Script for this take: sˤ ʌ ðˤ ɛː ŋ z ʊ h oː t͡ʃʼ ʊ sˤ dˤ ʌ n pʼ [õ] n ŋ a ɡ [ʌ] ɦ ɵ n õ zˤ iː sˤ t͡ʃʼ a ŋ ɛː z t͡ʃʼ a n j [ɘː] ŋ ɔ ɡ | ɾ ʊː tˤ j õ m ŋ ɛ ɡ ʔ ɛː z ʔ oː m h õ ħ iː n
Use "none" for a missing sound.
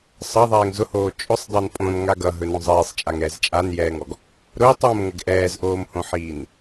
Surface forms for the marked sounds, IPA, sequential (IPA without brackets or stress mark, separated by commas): õ, ʌ, ɛː